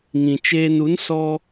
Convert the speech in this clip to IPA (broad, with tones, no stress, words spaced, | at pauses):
ŋĩ˨t͡ʃeː˧nu˨˦n sɔ˧